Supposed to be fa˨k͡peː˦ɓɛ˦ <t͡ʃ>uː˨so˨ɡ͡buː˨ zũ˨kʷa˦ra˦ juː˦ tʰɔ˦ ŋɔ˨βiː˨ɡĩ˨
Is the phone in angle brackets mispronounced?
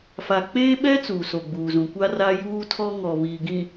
yes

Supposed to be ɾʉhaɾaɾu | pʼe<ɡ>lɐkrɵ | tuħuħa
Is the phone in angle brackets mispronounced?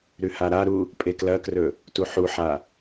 yes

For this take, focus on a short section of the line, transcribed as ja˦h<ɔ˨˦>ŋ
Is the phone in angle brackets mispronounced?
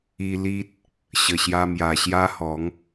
no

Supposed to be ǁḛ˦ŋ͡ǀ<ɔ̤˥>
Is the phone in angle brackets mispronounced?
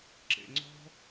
no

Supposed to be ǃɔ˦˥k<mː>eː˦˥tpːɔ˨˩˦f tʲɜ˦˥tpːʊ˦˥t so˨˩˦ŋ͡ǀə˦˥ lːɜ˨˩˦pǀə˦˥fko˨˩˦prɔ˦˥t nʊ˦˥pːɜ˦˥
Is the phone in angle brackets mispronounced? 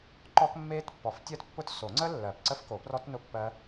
no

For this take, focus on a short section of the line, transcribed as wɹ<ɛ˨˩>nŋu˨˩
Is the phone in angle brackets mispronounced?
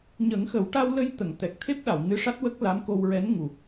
yes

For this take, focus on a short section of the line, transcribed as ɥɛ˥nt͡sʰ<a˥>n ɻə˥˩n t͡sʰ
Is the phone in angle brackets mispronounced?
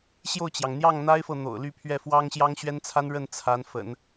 no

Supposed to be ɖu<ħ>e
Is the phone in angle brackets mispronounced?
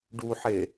no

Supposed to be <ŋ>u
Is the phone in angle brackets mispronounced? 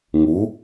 no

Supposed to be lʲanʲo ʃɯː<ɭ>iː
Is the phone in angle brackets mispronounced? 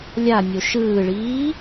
no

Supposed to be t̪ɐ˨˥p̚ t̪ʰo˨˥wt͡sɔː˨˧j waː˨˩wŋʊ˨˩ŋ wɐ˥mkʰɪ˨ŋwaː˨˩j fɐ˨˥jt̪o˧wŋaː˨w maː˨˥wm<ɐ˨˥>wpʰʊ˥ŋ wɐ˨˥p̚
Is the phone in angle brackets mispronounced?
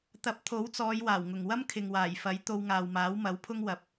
no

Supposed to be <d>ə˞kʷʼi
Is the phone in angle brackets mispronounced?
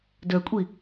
no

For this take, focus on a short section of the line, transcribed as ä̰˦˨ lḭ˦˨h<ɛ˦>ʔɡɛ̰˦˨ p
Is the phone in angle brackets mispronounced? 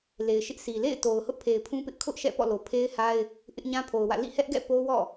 no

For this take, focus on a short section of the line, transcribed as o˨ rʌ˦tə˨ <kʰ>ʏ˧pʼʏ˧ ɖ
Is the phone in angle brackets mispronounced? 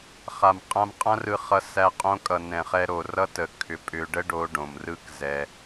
no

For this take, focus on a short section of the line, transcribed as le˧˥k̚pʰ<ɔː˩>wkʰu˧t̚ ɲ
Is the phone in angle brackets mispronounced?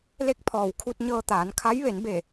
no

